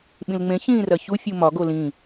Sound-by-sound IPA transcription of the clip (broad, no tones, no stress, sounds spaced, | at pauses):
ɓ ĩ l ŋ͡m ẽ ç ĩː r ɐ ç u fʲ u m ɒ ɡ o l ĩ